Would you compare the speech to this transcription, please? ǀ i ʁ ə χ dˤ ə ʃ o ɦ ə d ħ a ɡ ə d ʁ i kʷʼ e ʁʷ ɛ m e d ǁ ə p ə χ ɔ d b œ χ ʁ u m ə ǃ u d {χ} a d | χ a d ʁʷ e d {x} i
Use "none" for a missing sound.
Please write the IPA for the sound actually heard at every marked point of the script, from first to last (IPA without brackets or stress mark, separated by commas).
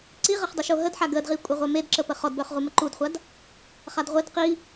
χʷ, q